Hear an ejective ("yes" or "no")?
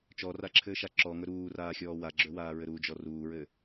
no